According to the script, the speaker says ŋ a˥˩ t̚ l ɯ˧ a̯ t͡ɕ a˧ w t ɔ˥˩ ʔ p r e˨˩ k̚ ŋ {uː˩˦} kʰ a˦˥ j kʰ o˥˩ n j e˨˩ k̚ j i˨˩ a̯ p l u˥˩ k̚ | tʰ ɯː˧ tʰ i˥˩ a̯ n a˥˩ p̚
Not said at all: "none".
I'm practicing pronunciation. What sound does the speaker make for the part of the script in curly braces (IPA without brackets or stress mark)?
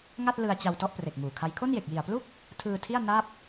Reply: uː˨˩